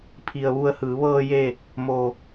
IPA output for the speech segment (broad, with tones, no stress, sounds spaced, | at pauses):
pʰ i˩ ə̯ ʋ u˧˩ ə̯ h ɯː˩˧ ʋ ɤː˧ j e˥˨ | m o˧˩